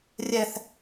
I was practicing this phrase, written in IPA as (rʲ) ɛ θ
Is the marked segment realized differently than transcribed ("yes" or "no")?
no